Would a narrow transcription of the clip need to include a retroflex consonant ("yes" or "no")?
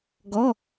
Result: no